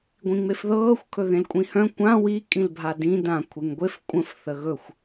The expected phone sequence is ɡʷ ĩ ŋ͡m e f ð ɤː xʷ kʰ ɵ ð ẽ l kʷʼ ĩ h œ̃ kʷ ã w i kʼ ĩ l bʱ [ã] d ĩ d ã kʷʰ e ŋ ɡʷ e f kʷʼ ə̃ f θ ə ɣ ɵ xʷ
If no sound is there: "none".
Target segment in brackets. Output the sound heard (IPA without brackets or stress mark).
a